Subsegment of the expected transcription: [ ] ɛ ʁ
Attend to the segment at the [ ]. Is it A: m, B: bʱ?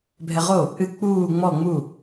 B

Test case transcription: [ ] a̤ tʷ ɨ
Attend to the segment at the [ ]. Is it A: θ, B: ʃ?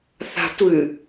A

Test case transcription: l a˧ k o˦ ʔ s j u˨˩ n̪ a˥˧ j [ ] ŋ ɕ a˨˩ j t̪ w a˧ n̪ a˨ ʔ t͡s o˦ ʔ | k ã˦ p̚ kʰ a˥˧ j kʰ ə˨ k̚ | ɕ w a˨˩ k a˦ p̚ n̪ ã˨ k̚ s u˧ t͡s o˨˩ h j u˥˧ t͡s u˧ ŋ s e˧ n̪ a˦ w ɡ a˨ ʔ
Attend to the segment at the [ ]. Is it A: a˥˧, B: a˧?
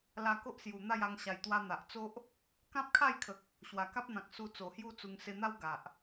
B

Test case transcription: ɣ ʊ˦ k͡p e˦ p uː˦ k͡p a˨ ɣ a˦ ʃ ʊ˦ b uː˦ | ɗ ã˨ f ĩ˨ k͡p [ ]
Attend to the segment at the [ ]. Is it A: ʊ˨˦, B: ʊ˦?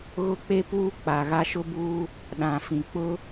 B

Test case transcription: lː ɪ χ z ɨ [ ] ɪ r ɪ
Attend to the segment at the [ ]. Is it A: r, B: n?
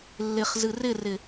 A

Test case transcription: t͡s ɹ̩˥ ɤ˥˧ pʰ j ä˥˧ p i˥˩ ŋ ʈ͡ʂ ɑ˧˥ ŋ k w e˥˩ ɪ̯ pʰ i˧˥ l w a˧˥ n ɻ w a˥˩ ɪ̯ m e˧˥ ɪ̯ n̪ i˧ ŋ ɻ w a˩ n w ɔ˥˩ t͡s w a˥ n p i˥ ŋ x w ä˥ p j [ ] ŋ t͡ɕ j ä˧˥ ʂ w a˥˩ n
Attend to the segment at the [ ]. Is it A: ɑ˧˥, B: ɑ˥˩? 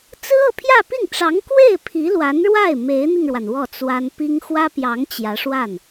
A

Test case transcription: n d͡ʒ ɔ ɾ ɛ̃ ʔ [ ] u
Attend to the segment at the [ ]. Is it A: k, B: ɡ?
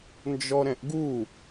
B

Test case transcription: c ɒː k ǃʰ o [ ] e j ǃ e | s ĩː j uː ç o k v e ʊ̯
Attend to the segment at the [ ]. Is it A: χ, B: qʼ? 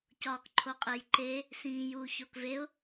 B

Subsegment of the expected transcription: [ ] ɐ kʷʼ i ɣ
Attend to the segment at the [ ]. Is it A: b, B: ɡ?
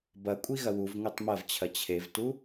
A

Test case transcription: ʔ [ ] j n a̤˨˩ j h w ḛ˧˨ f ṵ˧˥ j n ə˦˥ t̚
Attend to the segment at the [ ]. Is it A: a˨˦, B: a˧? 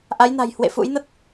A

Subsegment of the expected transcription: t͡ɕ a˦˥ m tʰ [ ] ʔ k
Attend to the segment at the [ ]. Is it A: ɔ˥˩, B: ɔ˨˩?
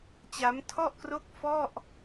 A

